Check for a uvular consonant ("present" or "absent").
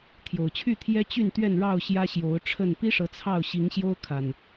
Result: absent